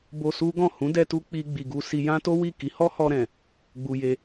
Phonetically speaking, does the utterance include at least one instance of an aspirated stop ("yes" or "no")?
no